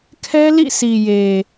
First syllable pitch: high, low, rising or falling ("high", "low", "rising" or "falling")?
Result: high